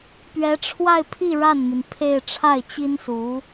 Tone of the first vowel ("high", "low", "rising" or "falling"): rising